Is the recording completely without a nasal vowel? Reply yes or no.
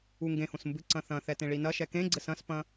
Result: no